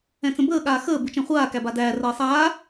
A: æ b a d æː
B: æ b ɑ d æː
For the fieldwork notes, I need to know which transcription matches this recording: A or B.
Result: A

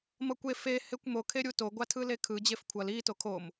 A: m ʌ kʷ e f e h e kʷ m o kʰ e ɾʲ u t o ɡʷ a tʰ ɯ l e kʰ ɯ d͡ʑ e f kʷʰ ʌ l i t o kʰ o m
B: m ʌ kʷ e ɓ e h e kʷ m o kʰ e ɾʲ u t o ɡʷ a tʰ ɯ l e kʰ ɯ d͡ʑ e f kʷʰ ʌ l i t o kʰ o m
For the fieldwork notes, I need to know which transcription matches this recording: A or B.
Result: A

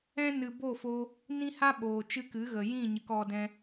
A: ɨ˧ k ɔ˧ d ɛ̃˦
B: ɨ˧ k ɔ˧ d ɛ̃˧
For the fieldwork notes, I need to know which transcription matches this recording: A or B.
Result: A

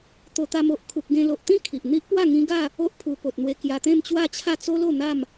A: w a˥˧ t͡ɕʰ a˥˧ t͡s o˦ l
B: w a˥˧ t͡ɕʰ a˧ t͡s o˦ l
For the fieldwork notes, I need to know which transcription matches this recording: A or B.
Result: A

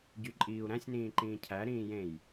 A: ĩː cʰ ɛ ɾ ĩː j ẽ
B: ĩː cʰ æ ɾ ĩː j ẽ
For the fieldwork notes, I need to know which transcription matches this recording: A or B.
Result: B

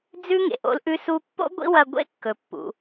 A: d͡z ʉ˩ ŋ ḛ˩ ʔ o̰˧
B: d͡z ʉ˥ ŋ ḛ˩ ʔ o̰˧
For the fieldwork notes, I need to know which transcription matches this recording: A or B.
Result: B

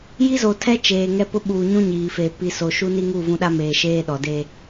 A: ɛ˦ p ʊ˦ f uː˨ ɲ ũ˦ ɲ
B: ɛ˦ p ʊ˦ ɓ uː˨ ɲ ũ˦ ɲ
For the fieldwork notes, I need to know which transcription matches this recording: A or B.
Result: B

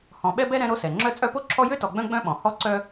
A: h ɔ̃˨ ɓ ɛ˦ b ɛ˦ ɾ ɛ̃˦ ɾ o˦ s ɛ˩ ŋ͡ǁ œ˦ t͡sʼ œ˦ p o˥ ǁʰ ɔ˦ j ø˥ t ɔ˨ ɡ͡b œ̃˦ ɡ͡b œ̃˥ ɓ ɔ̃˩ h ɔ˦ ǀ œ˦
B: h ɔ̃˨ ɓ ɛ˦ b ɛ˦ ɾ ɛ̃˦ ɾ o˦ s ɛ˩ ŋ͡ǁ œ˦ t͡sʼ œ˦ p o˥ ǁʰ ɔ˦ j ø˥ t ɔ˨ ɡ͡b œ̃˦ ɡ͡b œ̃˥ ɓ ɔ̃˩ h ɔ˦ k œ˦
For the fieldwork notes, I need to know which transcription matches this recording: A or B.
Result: A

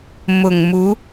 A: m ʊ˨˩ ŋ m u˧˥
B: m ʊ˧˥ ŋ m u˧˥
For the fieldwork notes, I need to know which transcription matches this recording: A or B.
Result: A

